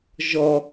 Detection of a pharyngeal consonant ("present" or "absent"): absent